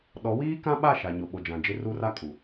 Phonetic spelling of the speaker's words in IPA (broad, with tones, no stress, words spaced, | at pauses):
ɗɔ˨˦wiː˦kã˦ɓa˦˨ ʃa˨ ɲo˨ɓo˨d͡ʒã˨d͡ʒɪ˦ ru˦ ra˦kʼu˨